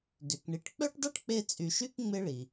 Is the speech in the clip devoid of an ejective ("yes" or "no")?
no